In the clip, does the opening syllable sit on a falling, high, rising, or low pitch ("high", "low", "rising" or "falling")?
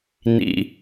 low